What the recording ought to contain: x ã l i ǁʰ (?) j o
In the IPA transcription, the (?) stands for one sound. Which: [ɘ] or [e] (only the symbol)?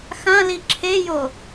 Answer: e